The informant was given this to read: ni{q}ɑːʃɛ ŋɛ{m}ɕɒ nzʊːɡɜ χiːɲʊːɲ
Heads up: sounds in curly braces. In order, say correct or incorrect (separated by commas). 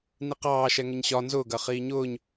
correct, incorrect